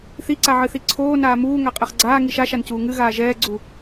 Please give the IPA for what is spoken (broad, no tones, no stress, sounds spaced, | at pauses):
θ i ǀ a ʕ ɨ θ i ǀʰ oː n aː m uː ŋ a qʼ ɛ χ ɡ͡ǀ aː ŋ i ʃ a ʃ a n c uː ŋ ɨ ɣ aː ʒ ɛː ɡ͡ǀ u